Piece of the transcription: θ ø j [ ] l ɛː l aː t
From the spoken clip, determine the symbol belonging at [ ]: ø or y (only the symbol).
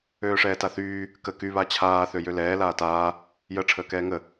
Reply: ø